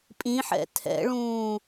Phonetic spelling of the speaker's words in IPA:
pʼ ĩ ħ ɛ̰ tʰ ɛ̰ ɭ ũː

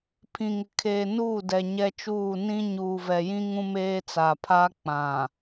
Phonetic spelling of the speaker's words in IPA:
pʰ ĩ˨ ŋ ɪ˨ kʰ eː˨ n uː˦˨ d ɛ˨ ɲ ɛ˦ t͡ʃ uː˦˨ n ĩ˦ ɲ uː˨ v ɛ˨ j ĩ˦ ŋ ũ˦ m eː˦ t͡s a˨ pʰ aː˦ k͡p ã˨

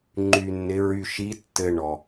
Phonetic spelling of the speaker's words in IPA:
ŋ͡ǃ y˧ nː ɪ˧˥ ɹ y˧ ʃ i˧˥ tː ɘ˧ ɳ ɔ˩

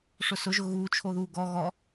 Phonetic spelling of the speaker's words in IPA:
ʂ ʊ s ʊ ʒ ʊ ɣ uː t͡ʃʰ o ð uː ɡ ɔ ɣ ɔ

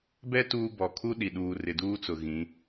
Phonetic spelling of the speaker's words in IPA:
b ɛ˦ t uː˦ b ɔ˨ kʰ u˦ ɗ i˨ ɗ uː˨ r ɪ˨ d uː˦ t͡s ʊ˨ ɣ ĩ˨˦

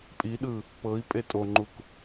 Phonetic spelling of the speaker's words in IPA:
pʼ i ɗ ɯ | p ɤ i̯ pʼ e tʼ o ŋ͡ǃ u k

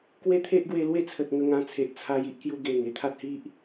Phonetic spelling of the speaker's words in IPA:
k w e˦ t̪ʰ e˦ ʔ ɡ w e˧ l w e˥˧ t͡sʰ ə˨ t̚ ŋ ə˧ ŋ ã˧ t͡sʰ e˨ ʔ t͡sʰ a˧ j i˦ ʔ k j u˧ ɡ e˨˩ ŋ e˦ t̪ʰ a˦ t̚ h i˦ ʔ

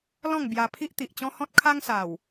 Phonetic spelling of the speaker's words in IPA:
l ɔ̃˥˧ ŋ b j a˧ pʰ i˦ ʔ t̪ i˨ ʔ t͡ɕ ɔ̃˦ h ɔ̃˦ t̚ kʰ a˦ ŋ s a˨˩ w

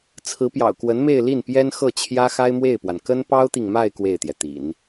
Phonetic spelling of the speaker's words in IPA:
t͡sʰ ɹ̩˧˥ p j ɑ̰˨˩ ʊ̯ k w ə˧˥ n m e˥˧ ɪ̯ l i˥˩ n p j ɛ˥ n x ɤ˥˩ t͡ɕʰ j ä˥ x a˥ ɪ̯ m w e˥˩ ɪ̯ p w a˩ n k ə˥ n p ɑ˥ ʊ̯ t̪ i˨ ŋ m a˥˧ ɪ̯ k w e˥˩ ɪ̯ t̪ j ɛ˩ t̪ ḭ˨˩˦ n

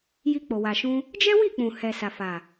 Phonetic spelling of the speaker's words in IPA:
j i˧ k͡p o˨ w a˨ ʃ ũ˧ | d͡ʒ ɛ˦ w i˦˨ k͡p ũ˨ h ɛ˨ s a˨ f a˨

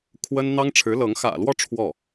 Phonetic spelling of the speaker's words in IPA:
kʰ w ə˥ n n̪ ɑ˥ ŋ ʈ͡ʂʰ ɻ̩˧˥ l ɤ˧˥ ŋ x ä̰˨˩ l w ɔ˥˧ ʈ͡ʂʰ w ɔ˥˩

